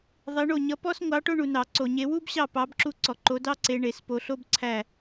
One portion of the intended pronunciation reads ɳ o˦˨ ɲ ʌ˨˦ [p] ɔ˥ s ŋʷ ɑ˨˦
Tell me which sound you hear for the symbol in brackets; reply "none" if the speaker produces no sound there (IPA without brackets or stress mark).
p